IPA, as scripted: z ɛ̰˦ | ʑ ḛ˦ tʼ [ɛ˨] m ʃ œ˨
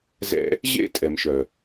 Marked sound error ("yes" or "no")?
no